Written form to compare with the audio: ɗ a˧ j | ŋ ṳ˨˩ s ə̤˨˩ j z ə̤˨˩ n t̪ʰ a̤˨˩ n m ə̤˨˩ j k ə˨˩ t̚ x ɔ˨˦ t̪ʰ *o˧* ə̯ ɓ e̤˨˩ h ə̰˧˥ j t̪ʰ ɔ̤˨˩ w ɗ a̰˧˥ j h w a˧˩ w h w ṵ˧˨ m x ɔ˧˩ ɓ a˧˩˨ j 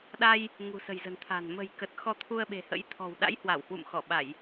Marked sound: incorrect: u˧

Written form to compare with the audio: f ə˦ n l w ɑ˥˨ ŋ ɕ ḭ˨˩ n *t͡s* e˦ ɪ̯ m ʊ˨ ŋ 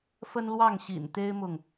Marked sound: incorrect: t̪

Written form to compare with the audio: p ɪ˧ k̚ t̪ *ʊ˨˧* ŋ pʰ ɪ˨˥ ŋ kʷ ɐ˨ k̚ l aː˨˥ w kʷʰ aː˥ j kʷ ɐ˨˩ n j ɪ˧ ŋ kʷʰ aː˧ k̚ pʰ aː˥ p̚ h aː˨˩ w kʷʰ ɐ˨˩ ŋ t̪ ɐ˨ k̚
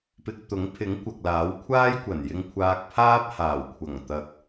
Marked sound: incorrect: ʊ˨˥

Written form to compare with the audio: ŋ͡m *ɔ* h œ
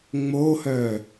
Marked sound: incorrect: o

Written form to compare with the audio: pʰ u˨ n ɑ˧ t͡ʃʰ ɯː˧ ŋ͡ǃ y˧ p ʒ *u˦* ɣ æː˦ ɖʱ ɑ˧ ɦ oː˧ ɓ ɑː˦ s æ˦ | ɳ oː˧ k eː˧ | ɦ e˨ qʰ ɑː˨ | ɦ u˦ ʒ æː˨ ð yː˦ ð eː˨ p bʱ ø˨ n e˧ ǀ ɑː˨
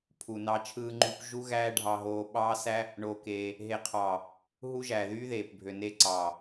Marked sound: correct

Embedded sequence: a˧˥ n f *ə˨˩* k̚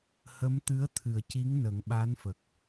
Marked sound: correct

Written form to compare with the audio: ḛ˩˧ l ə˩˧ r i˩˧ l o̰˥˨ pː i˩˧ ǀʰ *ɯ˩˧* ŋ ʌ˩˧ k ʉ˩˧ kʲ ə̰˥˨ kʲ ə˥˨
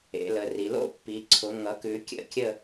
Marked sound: incorrect: ʊ˩˧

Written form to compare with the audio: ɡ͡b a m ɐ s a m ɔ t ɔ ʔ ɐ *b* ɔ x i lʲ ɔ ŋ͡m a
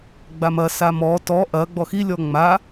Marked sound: incorrect: ɡ͡b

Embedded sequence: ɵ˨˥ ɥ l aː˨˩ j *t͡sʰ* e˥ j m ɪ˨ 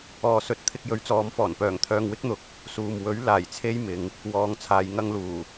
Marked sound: correct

